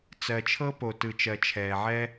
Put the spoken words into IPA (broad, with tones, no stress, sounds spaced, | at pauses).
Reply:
t͡s ɜ˨ t͡ʃʰ ɤ˦ p o˨ t ɯ˨ t͡ʃ ɜ˨ t͡ʃʰ ɛː˨ ʕ ɛ˦